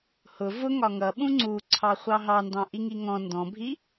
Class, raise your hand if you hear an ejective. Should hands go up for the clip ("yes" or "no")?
no